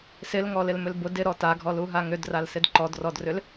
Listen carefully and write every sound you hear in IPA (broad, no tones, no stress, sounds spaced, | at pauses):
s ɪ l ŋ ɔ l ɪ l m ʏ l b ʊ d ɪ ɾ ɔ t a ɡʱ ɔ l u ɦ a ŋ ʏ d r a l s ɪ d ǃ ɔ d r ɔ d r ʏ l